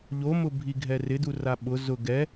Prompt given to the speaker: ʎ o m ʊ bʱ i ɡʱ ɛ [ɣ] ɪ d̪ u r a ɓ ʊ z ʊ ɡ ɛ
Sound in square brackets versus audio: incorrect: r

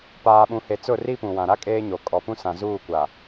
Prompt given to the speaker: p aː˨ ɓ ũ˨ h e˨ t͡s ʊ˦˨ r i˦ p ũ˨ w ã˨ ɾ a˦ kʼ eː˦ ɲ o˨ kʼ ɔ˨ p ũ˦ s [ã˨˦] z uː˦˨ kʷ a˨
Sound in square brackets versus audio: incorrect: ã˨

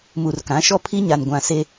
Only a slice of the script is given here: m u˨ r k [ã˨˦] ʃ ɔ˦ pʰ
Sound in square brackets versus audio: correct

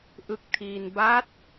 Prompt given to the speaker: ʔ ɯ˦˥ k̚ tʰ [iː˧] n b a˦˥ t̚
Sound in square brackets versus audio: correct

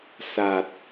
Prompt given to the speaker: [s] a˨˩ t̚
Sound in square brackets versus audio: correct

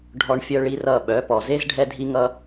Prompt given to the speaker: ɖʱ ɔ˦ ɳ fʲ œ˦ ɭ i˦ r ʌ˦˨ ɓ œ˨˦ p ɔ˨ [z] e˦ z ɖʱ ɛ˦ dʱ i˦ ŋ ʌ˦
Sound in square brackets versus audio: correct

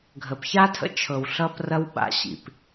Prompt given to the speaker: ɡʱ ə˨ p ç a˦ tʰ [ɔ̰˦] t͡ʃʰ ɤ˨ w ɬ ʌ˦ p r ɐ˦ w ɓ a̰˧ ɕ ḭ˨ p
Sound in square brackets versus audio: incorrect: ə̰˦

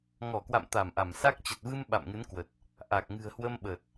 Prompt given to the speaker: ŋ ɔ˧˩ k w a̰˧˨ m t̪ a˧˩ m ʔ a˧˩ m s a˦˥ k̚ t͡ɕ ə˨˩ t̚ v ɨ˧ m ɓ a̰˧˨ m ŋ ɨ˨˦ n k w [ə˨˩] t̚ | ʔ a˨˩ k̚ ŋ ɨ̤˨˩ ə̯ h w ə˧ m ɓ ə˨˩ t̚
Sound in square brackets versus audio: correct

